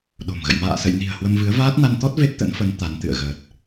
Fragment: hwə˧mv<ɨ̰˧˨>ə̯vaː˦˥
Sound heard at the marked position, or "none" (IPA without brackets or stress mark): ɨ˨˦